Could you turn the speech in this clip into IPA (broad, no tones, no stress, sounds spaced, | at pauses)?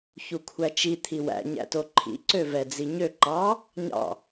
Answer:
ç u kʷʰ æ t͡ʃ i t̪ʰ i w æ̰ ɲ æ̰ t o ǃʰ ḭ ǀ ø v ɛ d͡z i ɲ ø ǃ ɑ | ɲ ɑ̰